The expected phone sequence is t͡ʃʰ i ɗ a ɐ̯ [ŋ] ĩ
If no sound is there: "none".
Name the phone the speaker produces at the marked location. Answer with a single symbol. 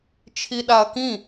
k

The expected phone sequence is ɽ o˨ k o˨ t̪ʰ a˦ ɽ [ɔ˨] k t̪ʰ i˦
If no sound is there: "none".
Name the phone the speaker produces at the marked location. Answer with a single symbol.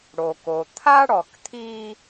ɔ˨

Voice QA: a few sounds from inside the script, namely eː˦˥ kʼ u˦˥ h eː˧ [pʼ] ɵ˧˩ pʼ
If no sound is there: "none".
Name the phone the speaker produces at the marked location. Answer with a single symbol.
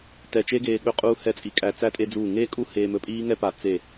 m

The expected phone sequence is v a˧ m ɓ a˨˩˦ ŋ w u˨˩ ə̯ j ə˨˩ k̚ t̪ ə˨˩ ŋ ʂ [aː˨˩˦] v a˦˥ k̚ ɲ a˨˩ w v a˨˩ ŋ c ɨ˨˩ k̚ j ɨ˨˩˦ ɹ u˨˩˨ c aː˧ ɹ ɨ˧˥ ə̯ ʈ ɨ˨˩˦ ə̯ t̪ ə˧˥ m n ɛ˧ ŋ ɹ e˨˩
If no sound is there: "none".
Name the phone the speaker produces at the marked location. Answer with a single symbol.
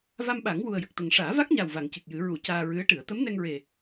aː˨˩˦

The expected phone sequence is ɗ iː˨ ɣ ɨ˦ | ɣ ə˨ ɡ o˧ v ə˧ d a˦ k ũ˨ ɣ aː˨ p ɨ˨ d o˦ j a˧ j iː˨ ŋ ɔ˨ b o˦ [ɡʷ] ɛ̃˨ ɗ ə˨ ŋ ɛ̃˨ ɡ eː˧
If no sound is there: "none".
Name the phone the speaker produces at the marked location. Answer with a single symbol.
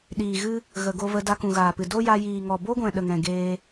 ɡʷ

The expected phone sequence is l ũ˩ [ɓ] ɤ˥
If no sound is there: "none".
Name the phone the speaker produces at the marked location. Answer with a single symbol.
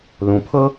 pʰ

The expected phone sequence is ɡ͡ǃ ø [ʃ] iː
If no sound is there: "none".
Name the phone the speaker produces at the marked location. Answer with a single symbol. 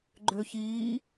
ç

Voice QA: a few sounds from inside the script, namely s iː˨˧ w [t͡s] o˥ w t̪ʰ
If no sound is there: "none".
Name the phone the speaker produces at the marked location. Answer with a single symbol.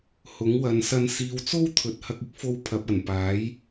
t͡s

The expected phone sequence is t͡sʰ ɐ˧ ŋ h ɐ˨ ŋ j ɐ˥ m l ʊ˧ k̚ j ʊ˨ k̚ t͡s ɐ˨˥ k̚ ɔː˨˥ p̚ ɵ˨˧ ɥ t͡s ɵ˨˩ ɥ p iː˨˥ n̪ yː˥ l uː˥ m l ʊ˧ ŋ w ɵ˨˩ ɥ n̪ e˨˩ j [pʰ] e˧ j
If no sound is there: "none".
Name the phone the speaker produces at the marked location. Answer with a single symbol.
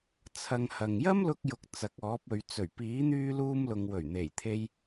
t̪ʰ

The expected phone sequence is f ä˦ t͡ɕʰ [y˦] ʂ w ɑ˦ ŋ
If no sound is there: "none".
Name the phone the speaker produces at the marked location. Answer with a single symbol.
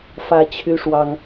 y˦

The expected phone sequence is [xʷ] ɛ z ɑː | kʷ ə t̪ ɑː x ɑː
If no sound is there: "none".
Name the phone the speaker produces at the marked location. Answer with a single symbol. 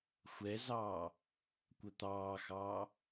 xʷ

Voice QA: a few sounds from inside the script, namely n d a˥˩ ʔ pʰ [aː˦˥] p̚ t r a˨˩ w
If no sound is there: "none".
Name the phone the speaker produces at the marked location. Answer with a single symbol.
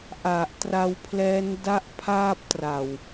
aː˥˩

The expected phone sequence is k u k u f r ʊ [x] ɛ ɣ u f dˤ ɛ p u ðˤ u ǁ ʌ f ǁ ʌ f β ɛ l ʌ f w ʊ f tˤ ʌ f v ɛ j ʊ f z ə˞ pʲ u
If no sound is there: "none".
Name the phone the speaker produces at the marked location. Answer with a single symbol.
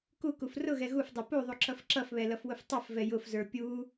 ɣ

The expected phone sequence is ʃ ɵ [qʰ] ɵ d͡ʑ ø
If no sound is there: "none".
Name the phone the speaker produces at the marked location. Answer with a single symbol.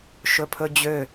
pʰ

